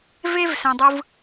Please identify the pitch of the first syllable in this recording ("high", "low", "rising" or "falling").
high